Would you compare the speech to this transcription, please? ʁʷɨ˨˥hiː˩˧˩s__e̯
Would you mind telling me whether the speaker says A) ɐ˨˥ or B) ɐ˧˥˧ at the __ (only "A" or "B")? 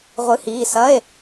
B